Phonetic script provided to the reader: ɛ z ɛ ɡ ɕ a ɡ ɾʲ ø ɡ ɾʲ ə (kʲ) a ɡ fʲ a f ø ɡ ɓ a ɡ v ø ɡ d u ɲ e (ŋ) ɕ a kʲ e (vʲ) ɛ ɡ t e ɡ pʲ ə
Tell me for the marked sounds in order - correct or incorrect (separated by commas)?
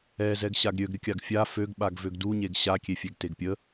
correct, incorrect, incorrect